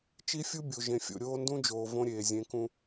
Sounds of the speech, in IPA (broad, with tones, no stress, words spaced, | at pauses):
t͡ʃi˦fʲu˦bʲo˨ ʒẽ˨fʲo̰˨ ɾʲoː˦ndũ˦d͡ʒoː˨ võ˦ɾʲeː˨zʲẽ˨˦kũ˦